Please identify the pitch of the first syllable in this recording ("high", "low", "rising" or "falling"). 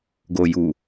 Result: low